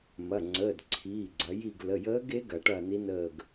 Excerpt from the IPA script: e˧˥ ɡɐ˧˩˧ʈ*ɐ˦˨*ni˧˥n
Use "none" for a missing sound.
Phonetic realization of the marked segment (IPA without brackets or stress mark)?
ɐ˦˨